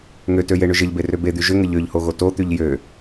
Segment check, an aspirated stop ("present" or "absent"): absent